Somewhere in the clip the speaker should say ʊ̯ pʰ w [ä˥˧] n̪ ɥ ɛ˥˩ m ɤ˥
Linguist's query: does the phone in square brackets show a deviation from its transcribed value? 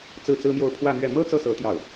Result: no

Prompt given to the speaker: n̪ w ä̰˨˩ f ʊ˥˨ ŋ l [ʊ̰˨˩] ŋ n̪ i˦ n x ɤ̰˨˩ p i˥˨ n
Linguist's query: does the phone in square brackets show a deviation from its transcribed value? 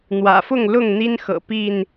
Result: yes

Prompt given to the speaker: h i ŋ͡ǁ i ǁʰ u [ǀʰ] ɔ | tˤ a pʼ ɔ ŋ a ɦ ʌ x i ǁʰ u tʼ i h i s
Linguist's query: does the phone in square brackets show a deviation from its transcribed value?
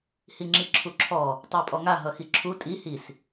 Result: yes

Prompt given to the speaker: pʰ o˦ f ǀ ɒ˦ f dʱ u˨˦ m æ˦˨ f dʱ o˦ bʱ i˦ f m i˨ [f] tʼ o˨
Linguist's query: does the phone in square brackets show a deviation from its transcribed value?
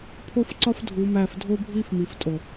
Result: no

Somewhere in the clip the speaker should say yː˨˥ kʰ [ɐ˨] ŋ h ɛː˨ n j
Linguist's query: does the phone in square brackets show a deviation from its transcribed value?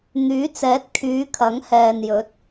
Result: yes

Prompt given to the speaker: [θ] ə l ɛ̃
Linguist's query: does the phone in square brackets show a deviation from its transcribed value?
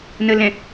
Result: yes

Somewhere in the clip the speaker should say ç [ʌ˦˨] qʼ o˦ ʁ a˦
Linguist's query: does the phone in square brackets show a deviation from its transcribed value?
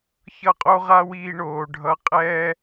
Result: no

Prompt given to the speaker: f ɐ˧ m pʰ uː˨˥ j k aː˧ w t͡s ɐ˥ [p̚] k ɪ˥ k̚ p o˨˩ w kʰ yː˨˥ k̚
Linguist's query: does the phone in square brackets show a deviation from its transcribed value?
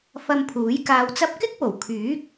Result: no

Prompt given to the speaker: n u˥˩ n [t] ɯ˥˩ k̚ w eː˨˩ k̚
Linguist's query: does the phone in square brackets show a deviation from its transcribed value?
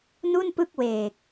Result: yes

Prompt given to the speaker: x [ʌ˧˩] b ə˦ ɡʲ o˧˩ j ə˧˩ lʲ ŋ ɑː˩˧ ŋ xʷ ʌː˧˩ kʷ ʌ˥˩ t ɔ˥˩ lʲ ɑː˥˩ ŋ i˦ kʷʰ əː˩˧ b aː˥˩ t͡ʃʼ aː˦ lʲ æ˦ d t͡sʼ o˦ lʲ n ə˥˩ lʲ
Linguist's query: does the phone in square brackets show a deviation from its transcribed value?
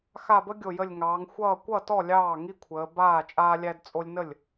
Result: yes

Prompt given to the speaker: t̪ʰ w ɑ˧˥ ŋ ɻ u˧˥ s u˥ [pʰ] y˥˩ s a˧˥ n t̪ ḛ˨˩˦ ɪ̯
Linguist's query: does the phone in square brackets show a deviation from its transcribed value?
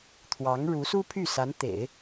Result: no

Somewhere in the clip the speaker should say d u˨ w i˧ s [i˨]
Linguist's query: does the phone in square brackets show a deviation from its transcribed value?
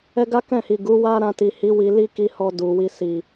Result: no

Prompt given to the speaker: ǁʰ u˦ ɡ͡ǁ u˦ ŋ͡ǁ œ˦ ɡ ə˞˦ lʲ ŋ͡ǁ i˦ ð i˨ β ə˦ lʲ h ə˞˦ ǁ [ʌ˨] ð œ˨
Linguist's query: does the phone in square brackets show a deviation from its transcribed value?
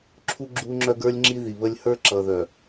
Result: no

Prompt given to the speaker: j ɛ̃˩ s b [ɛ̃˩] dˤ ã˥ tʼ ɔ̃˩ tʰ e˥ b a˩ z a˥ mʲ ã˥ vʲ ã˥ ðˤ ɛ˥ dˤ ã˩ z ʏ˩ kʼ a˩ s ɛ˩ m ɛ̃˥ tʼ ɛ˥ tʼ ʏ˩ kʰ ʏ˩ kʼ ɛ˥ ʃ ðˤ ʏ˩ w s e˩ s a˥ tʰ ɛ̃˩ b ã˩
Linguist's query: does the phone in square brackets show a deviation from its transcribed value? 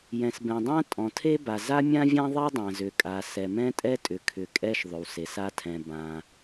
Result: no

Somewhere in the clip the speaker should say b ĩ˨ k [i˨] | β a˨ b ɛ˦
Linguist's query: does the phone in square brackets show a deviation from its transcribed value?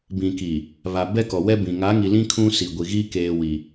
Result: no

